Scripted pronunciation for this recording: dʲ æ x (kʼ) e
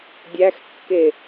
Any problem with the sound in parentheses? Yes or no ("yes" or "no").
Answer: yes